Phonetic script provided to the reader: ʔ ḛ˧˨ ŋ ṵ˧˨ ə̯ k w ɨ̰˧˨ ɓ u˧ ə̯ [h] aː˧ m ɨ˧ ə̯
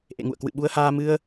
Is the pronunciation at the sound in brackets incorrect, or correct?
correct